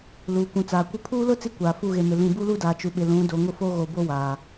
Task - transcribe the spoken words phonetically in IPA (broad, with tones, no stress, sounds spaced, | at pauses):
l uː˨ kʷ ũ˨ t͡s aː˨ kʷ ɪ˦ pʰ uː˦ l ʊ˦ t͡s i˦ kʷ aː˨ f u˦˨ ɣ e˨ m ɪ˨ l ĩ˨ b u˦ l u˦ d aː˨ t͡ʃ u˨ ɓ ɪ˨ l ũ˨˦ d o˨ ŋ ʊ˦ f o˦ ɣ o˨ b o˦ w aː˨